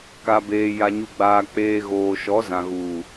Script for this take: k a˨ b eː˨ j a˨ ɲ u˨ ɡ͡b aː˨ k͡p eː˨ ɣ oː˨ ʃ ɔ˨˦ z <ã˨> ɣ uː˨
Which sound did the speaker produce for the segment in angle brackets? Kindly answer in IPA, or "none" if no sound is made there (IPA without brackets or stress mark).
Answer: ã˨